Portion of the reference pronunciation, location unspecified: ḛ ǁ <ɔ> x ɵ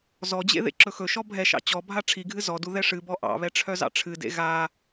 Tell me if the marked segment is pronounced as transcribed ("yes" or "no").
no